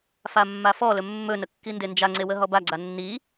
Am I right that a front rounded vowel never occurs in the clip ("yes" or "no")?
yes